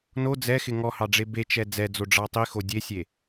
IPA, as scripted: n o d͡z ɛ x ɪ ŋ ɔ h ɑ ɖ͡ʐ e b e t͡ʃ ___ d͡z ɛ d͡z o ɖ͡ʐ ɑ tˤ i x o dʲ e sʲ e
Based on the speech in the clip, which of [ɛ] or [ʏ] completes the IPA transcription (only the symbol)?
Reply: ɛ